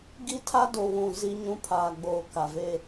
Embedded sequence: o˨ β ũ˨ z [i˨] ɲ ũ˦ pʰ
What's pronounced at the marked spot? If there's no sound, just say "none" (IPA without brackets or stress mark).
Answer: i˦